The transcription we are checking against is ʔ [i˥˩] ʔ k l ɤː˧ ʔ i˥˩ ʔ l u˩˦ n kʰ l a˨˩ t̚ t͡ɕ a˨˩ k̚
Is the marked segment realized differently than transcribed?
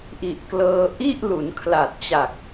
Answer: yes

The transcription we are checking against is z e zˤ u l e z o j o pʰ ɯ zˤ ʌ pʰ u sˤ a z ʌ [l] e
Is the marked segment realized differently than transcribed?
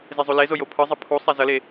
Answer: no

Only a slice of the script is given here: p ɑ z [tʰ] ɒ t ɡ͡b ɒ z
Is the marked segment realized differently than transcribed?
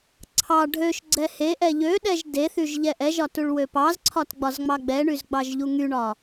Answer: yes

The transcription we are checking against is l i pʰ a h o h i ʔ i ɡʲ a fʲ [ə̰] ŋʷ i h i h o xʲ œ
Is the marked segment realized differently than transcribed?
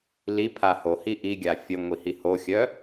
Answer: yes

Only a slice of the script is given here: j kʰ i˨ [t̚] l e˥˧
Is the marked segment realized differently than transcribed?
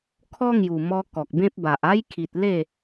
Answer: no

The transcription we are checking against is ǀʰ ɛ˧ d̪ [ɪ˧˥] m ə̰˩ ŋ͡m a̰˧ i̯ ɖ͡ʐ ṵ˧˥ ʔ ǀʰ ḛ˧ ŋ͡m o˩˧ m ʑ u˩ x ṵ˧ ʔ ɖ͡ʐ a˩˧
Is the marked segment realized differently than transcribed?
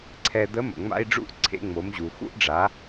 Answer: yes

